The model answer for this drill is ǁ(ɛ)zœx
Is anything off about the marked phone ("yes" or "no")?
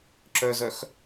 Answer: yes